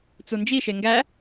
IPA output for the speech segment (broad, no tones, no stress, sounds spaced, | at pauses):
t͡s u n d͡ʒ i ʃ e ŋ ɡ æ